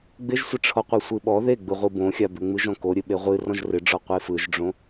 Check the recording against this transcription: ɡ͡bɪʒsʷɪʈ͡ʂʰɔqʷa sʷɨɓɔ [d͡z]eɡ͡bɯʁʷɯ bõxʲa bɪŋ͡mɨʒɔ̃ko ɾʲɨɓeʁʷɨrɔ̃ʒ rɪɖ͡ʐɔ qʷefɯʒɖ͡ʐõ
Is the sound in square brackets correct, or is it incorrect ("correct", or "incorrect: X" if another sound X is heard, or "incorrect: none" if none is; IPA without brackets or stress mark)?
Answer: incorrect: ð